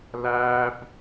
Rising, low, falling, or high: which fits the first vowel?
high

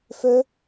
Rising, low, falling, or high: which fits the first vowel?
high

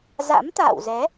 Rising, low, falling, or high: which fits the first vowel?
rising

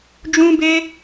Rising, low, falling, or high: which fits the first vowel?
high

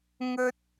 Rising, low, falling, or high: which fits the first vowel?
high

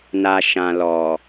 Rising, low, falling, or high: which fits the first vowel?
low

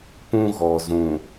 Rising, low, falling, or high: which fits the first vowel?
high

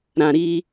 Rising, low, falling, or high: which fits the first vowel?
low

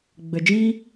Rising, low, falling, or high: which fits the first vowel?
low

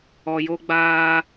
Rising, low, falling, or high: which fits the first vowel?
low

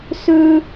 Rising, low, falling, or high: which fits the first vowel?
high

